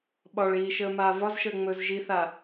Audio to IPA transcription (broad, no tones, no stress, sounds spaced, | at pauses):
ɓ ɒ ɭ iː ʃ əː m aː v ɒ z ʃ əː ŋ͡m ɵː z ʒ i θ a